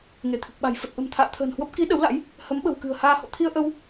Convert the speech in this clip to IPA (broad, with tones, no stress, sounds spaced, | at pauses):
ŋ e˧˩ t̪ʰ ɨ˨˩ k̚ ɓ a̤˨˩ j f ə˨˩ t̚ ʔ ə̤˨˩ m t̪ʰ a̰ː˧˨ t̪ʰ ə̤ː˨˩ n h w ə˦˥ p̚ k i˨˦ ɗ ə˨˦ w l a̰˧˥ j | h ə˨˦ m ɓ ə̤˨˩ w k ɨ̤˨˩ ə̯ h aː˧ h o̰˧˨ t̪ʰ i˧ ə̯ ʔ ə˧ w